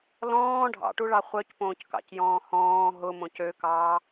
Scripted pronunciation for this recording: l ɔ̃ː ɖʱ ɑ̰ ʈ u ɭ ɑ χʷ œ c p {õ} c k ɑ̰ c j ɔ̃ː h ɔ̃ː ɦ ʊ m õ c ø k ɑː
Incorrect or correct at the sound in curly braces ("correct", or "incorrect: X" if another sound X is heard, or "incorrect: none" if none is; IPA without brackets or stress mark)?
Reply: incorrect: õː